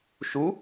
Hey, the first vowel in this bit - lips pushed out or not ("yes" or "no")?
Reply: yes